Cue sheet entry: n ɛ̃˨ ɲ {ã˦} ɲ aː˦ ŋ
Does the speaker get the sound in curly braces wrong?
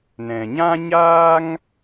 no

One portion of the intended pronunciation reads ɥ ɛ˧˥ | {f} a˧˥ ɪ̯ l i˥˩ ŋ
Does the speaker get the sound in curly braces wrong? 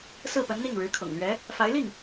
no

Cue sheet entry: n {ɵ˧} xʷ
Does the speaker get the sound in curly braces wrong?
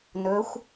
yes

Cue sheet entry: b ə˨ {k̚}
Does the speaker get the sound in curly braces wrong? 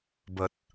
yes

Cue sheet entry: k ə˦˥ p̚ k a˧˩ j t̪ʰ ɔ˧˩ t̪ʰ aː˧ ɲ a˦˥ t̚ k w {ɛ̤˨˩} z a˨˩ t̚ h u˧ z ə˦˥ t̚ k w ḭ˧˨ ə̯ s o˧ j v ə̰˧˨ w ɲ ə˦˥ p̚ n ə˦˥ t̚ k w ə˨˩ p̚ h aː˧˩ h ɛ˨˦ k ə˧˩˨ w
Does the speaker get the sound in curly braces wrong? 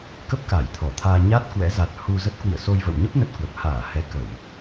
yes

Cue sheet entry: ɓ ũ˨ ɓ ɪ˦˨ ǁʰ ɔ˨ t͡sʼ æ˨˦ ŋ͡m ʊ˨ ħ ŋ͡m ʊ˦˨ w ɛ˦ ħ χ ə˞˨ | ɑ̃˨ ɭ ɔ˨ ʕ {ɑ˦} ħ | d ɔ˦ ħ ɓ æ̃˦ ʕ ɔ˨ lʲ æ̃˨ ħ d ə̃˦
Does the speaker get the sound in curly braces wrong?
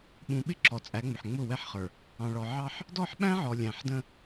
no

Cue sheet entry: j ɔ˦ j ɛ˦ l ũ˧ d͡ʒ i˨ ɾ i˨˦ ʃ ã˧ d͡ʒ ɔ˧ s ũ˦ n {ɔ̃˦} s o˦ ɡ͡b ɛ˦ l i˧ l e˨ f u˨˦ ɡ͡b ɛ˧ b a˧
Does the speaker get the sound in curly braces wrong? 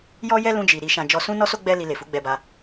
yes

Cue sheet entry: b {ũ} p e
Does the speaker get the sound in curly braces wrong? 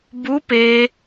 yes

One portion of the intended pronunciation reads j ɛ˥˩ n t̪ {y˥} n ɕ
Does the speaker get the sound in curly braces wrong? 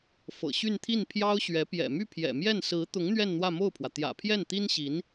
yes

